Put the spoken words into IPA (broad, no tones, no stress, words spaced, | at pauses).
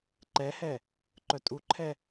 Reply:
ǃɛhɛ | ǃœtʼuǃʰɛ